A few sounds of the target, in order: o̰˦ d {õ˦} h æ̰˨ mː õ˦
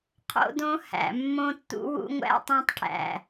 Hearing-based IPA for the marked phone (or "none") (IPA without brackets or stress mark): õ˦